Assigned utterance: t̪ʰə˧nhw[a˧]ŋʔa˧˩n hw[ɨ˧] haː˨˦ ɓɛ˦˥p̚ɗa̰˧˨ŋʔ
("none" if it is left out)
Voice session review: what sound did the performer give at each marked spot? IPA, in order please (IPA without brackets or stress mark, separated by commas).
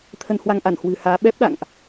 a˧, ɨ̤˨˩